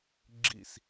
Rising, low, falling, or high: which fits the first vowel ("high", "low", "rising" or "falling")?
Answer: falling